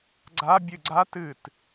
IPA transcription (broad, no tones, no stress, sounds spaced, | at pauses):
ɡ͡ǀ a bʲ ɨ ɡ͡ǀ a t ɨ t